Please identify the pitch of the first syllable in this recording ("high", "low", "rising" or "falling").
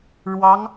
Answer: rising